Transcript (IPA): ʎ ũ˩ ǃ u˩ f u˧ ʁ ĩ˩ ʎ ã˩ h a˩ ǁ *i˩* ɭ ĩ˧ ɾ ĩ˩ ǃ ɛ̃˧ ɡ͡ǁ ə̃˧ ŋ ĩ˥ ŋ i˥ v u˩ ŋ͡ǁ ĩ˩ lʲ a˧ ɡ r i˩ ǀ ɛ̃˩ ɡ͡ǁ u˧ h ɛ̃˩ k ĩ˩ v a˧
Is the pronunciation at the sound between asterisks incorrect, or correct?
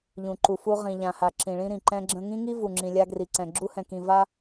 incorrect